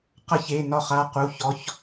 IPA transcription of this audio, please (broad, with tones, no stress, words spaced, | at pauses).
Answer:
qʌ˧çe˩˧˩ nɒ˧χa˩˧˩qu˩˧˩ çɔ˩˧˩ç